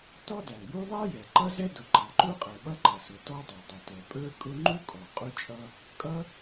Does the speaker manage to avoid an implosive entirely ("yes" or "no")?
no